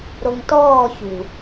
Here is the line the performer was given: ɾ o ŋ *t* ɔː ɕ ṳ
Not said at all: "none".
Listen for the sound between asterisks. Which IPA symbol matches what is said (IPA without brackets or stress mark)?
t